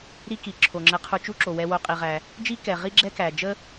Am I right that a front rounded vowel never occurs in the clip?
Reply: yes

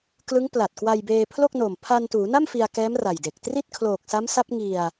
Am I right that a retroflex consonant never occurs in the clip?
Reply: yes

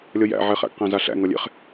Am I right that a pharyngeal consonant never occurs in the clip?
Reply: no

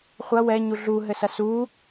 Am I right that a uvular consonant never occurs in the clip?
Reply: no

